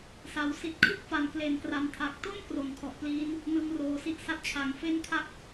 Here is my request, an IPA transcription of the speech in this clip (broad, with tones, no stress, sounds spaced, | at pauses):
s a˩˦ w s i˦˥ t̚ kʰ ɯ˥˩ k̚ f a˩˦ n k l e˨˩ n k r a˨˩ m tʰ a˨˩ k̚ t o˥˩ n k r o˩˦ n kʰ ɔ˨˩ ʔ p l iː˦˥ n | n ɯ˧ ŋ r oː˩˦ s i˦˥ ʔ s a˥˩ t̚ t͡ɕʰ a˩˦ ŋ f e˥˩ n kʰ a˥˩ k̚